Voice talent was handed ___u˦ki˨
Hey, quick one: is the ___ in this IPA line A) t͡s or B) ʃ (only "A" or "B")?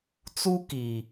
A